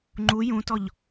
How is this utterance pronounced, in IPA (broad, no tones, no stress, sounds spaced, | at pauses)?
ŋ͡ǃ u j ũ t ɔ ʎ